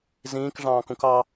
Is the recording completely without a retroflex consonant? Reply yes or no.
no